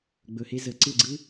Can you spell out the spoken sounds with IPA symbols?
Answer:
ɡ͡b ɵ˧ h e˦ z ə˧ ǀ ɯ˦˨ ɡ͡ǀ ɯ˦

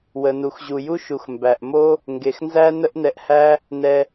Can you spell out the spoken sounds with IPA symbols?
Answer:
w ə˩ n u˩ x ʑ u˩ j u˥ ʃ u˩ x m b æ˩ ʔ m o˥ | ŋ ɡ e˩ x n z æ˥ n ə˥ ʔ n ɛ˧ ʔ h æ˥ | n ɛ˧

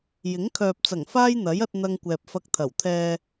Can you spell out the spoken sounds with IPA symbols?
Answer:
j ɪ˨˥ ŋ kʰ œː˨ p̚ t͡s ɐ˨˩ ŋ f aː˥ j n̪ ɐ˨˥ j ɐ˥ t̚ n̪ ɐ˥ ŋ kʷ ɛː˧ p̚ f ɐ˧ k̚ t̪ʰ ɐ˨˩ w t̪ʰ ɛː˧

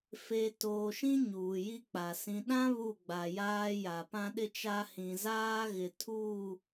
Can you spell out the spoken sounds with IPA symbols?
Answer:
f e˨ t oː˨ ʃ ĩ˦ ɲ uː˨ j i˦ k͡p a˨ s ĩ˨ ɗ ã˦ β u˦˨ ɡ͡b a˨ j aː˦ j a˨ p ã˦ ɗ ɪ˦ t͡ʃ a˦ h ĩ˨ z aː˦ ɣ ɪ˨ tʰ uː˦˨

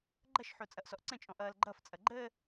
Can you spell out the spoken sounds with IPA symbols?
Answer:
ɡ͡ǃ ʌ ʃ ħ o t͡sʼ ʌ ʔ s ɔ ʔ ǀ ə̃ t͡ʃʼ ɔ̃ ʔ ʌː l ɡ͡ǃ ʌ f t͡sʼ ʌ ɡ͡ǃ əː

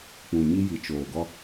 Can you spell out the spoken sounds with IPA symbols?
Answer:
k͡p ũ˨ ɲ i˦ j i˨ t͡ʃ oː˨ ɡ ɔ˦

